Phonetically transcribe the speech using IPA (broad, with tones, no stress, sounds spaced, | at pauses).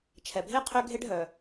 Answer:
t͡ʃʰ ɛ˩ bʱ e˥ qʰ ø˥ ɡʱ e˥ ɖ ɦ œ˩